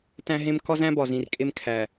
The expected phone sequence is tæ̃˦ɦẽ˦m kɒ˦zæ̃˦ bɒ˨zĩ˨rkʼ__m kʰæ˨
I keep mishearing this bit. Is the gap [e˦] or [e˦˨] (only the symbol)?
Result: e˦